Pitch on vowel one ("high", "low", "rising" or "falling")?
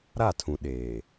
falling